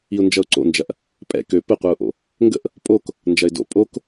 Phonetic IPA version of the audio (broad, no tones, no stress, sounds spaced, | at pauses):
i ʊ̯ n d͡ʒ ʌ ʊ̯ ǀ o̰ n d͡ʒ ɐ ʔ | pʼ ɛ̰ k ø p ɘ qʷ ɛ ʊ̯ ʔ o̰ | ŋ ɡ ə̰ ʔ | pʼ o k | n d͡ʒ ɐ ɪ̯ d o̰ pʼ o k